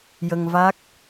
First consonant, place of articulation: palatal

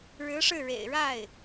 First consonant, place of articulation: retroflex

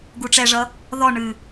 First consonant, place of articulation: velar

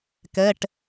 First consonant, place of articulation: velar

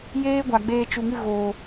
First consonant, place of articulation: palatal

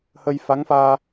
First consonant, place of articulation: glottal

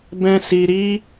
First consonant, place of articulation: labial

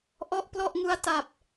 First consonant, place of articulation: glottal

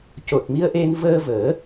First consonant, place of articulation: palatal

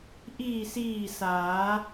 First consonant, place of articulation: glottal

